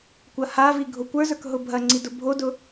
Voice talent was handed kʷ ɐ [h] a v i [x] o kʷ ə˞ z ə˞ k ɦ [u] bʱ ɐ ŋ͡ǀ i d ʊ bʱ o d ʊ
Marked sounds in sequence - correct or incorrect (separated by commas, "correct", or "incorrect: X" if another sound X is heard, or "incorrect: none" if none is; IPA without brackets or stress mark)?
correct, incorrect: ɡʱ, incorrect: ʊ